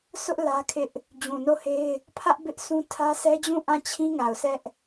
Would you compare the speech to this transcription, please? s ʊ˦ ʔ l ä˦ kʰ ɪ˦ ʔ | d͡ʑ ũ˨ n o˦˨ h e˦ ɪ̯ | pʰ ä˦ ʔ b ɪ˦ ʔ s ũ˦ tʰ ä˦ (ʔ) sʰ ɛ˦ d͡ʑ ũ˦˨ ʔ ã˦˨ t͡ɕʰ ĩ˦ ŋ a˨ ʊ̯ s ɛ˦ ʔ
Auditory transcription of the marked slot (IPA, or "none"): none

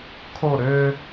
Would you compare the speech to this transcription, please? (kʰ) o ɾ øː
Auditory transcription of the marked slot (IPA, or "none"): kʰ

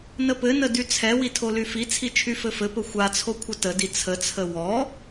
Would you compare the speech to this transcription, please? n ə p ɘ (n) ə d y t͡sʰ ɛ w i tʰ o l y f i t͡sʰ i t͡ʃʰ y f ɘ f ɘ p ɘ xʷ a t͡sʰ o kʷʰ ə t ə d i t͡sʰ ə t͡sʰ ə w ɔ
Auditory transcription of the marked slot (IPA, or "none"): n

